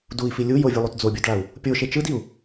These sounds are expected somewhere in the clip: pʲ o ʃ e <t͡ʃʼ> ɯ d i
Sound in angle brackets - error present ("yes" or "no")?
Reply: yes